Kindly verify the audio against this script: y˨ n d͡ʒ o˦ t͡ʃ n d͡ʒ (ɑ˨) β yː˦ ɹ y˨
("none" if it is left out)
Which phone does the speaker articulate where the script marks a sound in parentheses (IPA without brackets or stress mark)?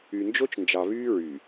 ɑ˨